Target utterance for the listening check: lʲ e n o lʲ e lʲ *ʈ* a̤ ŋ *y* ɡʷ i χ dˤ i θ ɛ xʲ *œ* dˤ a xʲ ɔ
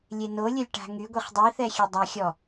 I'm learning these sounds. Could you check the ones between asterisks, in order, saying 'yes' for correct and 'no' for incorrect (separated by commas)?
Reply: yes, yes, no